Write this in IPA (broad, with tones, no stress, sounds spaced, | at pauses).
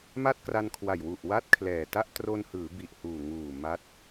m a˥˩ t̚ k r a˧ n kʰ w a˨˩ j w u˨˩ ʔ w a˥˩ t̚ kʰ l ɛː˨˩ t a˥˩ ʔ t r o˧ n h ɯː˩˦ b i˨˩ ʔ h uː˨˩ ŋ uː˨˩ m a˦˥ t̚